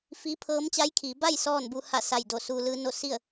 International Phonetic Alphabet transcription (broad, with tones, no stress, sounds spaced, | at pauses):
f i˧˥ pʰ ɤː˧˥ m t͡ɕ a˧˥ j kʰ iː˩˧ b a˥˨ j s ɔː˥˨ n b u˧ h a˧˩ s a˧˩ j d o˧˩ s u˧ l ɯː˧˥ n o˥˨ s i˥˨ ə̯